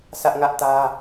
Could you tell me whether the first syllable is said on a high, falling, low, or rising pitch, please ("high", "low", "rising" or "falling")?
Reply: high